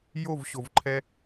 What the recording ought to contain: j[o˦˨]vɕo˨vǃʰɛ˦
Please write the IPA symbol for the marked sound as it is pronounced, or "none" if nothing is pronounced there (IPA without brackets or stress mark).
o˦˨